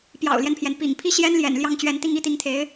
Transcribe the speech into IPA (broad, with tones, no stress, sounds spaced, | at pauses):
p j ɑ̰˨˩ ʊ̯ l j ɛ˦ n pʰ j ɛ˩ n p ḭ˨˩ ŋ pʰ i˥˩ ɕ j ɛ˥ n l j ɛ̰˨˩ n l j ɑ˥˩ ŋ t͡ɕ ɥ ɛ˧˥ n t̪ i˥˧ ŋ i˥˩ t̪ i˧˥ ŋ t̪ʰ e˧˥ ɪ̯